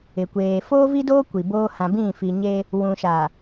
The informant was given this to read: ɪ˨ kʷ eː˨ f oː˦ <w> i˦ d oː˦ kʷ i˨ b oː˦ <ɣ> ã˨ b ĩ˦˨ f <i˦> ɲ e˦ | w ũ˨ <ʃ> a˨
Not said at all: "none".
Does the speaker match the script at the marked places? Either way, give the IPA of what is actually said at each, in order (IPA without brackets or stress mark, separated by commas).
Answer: v, h, i˨, ʃ